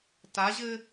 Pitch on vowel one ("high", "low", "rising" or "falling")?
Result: rising